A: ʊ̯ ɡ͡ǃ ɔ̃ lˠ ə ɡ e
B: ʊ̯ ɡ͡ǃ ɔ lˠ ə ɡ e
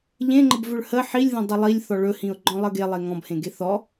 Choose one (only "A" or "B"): A